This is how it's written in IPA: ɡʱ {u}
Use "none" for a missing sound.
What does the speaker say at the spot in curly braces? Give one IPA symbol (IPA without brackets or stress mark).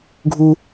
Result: u